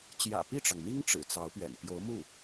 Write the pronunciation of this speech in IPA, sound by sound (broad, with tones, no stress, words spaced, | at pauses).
t͡ɕjä̰˨˩pi˥˩ʈ͡ʂɑ˩ŋn̪i˥ŋ ʈ͡ʂɻ̩˨˩t͡sɑ˧˥ʊ̯pɥɛ̰˨˩n pjo˧˥ʊ̯mu˥˩